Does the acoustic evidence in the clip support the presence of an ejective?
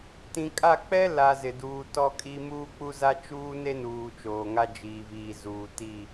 yes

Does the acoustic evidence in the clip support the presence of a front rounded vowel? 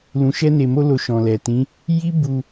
no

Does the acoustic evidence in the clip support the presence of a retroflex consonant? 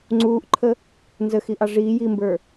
yes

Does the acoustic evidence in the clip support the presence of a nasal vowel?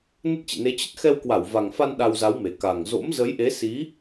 no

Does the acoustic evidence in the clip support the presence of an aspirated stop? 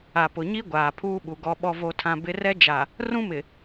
yes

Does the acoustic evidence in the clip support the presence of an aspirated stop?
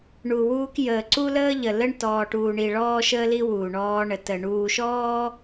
no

